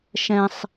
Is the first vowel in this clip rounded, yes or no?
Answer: no